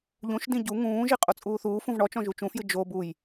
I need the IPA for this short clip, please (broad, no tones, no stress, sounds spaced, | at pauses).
ʎ ũ ʃ d ĩ ɟ u ŋ ũː ʒ i qʼ o t͡sʼ uː θ uː f ũ v ɳ ɔ t͡ʃ ɔ̃ ʒ u t͡ʃ ũ f j ɨ d͡ʒ o b u j